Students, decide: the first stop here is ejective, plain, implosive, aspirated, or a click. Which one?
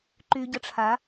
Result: click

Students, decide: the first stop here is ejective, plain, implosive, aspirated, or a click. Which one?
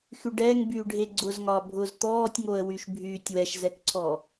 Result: plain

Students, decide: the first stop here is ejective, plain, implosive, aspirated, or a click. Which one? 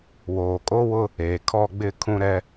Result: ejective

